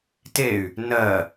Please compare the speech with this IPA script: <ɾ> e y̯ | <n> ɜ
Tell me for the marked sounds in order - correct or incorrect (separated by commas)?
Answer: incorrect, correct